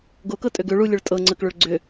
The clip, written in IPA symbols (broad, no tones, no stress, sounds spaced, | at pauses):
ɡ o k ɤ tʼ ø ɡ ø ɭ u lʲ ɵ ɭ tʼ ɤ ŋ͡ǀ ə k ɭ ɵ ɭ ɡ͡ǀ ʏ